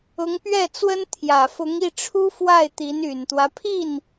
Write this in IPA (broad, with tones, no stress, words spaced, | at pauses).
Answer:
ʊ˧˥ŋpɥɛ˥˩t͡swə˥n t̪ʰjä˨˩fʊ˧˥ŋi˥˩ʈ͡ʂʰu˥ fwa˥˩ɪ̯t̪i˧˥n y˨˩nt̪wä˦pʰi˥˩n